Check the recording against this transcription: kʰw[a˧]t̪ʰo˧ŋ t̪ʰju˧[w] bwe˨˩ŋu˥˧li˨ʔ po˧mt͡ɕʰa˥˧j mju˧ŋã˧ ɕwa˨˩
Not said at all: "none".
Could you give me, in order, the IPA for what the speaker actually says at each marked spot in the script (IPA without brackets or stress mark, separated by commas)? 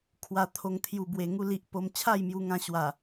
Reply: a˧, none